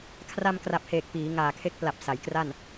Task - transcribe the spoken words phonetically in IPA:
kʰ r a˧ m k r a˨˩ p̚ h eː˨˩ k̚ p iː˩˦ ŋ aː˨˩ kʰ e˦˥ k̚ p l a˨˩ p̚ s a˩˦ j k r a˥˩ n

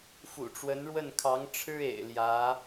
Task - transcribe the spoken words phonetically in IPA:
f ṵ˨˩ ʈ͡ʂ w ə˧˥ n ɻ w ə˥˩ n kʰ ɑ˧˥ ŋ ʈ͡ʂʰ ɻ̩˥ ḛ˨˩ ɪ̯ l j ä˧˥

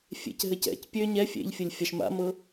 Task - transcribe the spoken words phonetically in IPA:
fʲ ḛ c ɦ ɘ c ɛ̰ c pʲ ø ɲ ɛ fʲ ḛ ʎ fʲ ɘ lʲ fʲ a ʃ m a̰ m ɤ

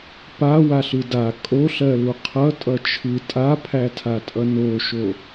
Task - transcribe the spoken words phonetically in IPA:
p a w a ɬ ɯ d a kʼ o ɬ ɜ l u qʰ ʌ tʼ ʌ t͡ʃʰ ɯ tʼ a pʰ æ tʰ a tʼ ʌ n o ʃ o

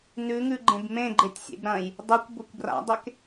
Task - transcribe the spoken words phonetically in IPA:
n ʉ ŋ ʉ ɡ͡ǃ ẽ b m ẽ ɡ͡ǃ e tʲ sʲ ḛ b ɾ ɐ̃ j | dˤ ʉ kʷ b o kʷ b r a̰ dˤ e k

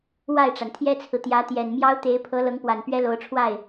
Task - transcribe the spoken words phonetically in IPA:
w a˥˩ ɪ̯ ʈ͡ʂ a˩ n t̪ʰ j ɛ˥ t͡sʰ ɹ̩˨ t̪ j ä˧˥ t̪ j ɛ˨˩ n m j ɑ˥ ʊ̯ t̪ e˧˥ ɪ̯ pʰ ɤ˧˥ l ɤ˧˥ ŋ p w a˨˩ n p ɥ ɛ˥ l o˧˥ ʊ̯ ʈ͡ʂʰ w a˥˩ ɪ̯

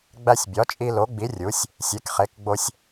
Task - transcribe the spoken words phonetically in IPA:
ɡ͡b æ˧ sʲ bʲ ɒ˩˥ t͡ʃʼ i˧ l o˩˥ ɡ͡b i˩˥ rʲ u˩˥ sʲ | sʲ e˩˥ k χ e˩˥ k ɡ͡b o˧ sʲ

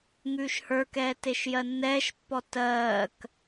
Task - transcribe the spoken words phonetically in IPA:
ŋ ʉː ʃ h ə˞ k ɛː t e ʃ j ɜ nː ɛː ʃ pː ɔ t ɜː k

